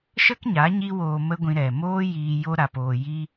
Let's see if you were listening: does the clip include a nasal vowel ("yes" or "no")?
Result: yes